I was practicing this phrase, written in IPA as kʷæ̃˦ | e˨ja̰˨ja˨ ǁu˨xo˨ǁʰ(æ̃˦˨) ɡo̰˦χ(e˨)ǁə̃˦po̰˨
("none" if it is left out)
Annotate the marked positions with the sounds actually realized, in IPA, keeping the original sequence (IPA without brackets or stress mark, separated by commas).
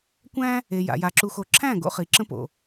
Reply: æ̃˦˨, i˨